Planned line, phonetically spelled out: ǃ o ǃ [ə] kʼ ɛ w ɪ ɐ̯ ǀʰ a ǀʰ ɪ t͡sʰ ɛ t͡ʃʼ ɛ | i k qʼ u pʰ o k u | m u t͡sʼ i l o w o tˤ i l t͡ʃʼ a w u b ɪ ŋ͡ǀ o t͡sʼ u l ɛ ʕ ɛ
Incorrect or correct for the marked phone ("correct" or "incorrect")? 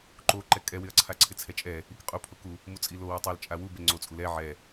incorrect